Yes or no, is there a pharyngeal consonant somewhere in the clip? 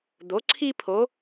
no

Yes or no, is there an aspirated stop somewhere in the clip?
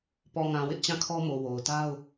yes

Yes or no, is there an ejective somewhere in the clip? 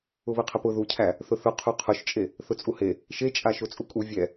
yes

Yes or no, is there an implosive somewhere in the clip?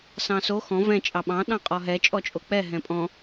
yes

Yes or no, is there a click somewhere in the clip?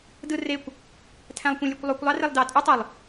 no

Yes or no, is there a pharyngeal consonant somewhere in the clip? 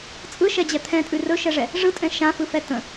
no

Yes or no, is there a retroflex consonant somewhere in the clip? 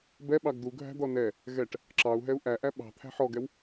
yes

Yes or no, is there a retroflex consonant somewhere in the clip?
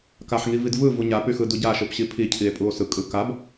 no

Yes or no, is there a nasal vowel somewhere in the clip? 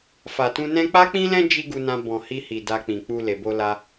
yes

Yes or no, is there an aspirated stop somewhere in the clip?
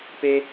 no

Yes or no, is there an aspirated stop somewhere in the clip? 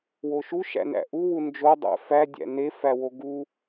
no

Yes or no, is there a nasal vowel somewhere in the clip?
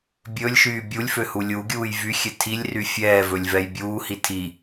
no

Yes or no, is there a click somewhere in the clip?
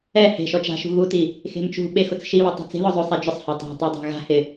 no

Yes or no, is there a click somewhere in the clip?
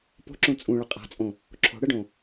yes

